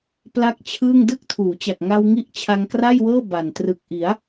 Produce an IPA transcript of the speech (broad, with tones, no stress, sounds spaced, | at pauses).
p l a˦˥ k̚ t͡ɕʰ ɯː˥˩ ŋ d ɯ˥˩ k̚ tʰ uː˩˦ t͡ɕ a˨˩ k̚ ŋ a˧ w ŋ i˦˥ ʔ t͡ɕʰ a˧ ŋ k r a˥˩ j w ɤː˥˩ b a˨˩ n t r ɯ˨˩ k̚ ʔ i˩˦ a̯